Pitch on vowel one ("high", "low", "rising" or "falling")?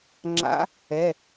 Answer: rising